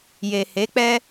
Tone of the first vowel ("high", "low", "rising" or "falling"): low